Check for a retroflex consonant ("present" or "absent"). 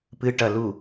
present